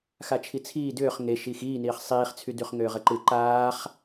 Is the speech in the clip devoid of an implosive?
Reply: yes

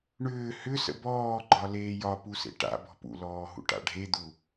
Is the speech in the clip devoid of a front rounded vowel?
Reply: no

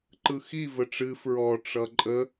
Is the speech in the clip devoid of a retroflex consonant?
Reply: no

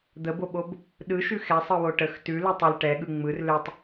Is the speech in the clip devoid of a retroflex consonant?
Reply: no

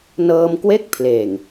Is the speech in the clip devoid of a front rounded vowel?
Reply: yes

